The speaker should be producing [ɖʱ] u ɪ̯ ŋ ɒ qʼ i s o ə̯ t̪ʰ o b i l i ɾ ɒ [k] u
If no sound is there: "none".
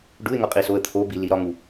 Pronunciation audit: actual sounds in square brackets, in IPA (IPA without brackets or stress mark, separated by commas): ɖ, ŋ